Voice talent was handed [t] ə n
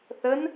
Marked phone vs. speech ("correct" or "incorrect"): incorrect